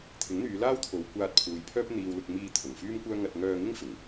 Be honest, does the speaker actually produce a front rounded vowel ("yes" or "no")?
yes